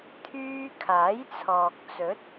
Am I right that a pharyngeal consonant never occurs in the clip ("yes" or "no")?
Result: yes